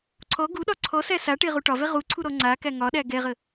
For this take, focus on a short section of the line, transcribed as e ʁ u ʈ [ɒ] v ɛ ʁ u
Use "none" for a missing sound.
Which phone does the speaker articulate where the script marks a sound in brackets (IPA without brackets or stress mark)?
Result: ɒ